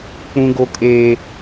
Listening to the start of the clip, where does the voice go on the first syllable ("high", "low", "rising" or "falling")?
high